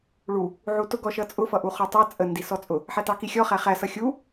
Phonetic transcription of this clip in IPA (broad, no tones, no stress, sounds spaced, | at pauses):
ɭ u | ʕ u t ʊ ɡ ɔ ʃ ʌ t͡sʼ ʊ f ʌ ʔ u χ ɔ tˤ ɑ t͡sʼ ə n d i s ɔ t͡sʼ ʊ | ħ æ t ɑ k i xʲ ɔ χ æ χ æ s ʌ xʲ u